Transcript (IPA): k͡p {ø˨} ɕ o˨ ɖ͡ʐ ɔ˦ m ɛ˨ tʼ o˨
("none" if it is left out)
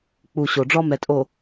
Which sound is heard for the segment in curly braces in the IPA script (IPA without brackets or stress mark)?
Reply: u˨